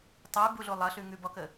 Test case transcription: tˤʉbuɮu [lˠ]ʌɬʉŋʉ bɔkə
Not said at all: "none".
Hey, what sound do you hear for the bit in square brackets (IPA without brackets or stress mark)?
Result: lˠ